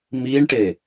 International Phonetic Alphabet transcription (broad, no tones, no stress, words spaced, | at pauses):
miɳʈe